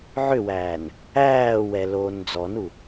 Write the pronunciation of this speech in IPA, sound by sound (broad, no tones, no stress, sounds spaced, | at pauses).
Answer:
ʕ ʏ w æː n | æː w ɛ l oː n d͡z ɔ n u